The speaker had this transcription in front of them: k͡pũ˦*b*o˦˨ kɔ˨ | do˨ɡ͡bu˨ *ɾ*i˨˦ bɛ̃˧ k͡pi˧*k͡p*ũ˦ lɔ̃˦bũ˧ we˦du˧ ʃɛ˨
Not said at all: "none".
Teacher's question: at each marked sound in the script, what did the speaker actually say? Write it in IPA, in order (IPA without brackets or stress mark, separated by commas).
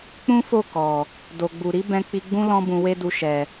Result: f, ɾ, ɡ͡b